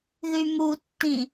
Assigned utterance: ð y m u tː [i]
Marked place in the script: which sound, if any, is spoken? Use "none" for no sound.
ĩ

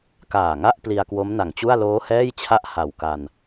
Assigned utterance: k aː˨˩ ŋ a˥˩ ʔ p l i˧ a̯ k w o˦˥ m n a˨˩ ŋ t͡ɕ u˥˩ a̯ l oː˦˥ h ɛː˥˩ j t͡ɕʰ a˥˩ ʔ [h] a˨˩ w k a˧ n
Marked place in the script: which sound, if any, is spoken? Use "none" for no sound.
h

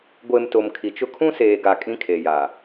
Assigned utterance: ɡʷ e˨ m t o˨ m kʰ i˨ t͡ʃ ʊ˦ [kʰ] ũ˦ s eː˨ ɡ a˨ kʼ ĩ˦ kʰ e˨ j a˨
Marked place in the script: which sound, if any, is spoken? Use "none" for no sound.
kʰ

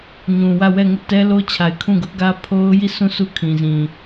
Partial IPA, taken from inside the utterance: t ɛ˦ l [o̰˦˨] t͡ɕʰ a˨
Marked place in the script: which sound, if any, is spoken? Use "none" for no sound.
o˦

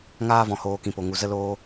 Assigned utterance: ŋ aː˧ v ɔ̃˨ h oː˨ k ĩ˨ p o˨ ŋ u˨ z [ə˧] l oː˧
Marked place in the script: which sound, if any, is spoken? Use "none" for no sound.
ə˧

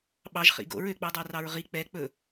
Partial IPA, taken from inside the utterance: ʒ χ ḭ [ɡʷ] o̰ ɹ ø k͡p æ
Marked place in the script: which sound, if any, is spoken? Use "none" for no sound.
ɡ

